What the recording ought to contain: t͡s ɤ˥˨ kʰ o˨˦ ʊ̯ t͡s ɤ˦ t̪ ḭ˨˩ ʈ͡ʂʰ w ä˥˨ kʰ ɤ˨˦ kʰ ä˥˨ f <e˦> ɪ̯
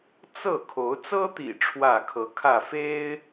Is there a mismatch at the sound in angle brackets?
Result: no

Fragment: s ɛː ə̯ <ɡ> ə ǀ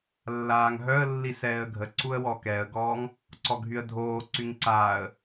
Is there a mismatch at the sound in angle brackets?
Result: yes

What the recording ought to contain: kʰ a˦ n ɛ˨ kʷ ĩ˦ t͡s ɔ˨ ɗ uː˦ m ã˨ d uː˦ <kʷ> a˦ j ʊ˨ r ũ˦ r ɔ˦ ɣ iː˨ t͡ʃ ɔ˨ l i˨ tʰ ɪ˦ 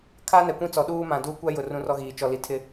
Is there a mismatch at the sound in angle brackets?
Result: no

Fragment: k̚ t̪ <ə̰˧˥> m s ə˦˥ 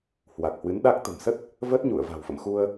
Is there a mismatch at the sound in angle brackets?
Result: yes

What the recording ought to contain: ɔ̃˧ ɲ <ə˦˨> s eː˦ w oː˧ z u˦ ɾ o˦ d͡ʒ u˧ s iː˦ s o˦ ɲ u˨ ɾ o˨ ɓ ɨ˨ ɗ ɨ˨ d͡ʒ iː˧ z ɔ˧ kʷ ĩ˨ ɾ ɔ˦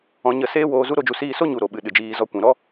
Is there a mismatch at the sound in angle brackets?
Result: no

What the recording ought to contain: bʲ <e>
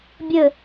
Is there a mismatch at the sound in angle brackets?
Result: yes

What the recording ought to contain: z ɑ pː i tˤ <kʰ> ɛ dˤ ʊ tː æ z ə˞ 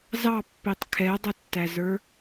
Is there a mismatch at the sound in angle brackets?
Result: no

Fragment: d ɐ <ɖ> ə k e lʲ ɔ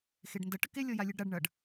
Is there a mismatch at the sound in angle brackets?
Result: yes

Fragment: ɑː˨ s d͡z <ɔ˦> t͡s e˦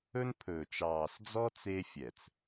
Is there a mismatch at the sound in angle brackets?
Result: no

